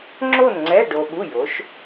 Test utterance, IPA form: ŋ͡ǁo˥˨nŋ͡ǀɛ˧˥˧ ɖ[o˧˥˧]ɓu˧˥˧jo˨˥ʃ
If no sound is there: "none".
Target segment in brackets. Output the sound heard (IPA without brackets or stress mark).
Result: o˧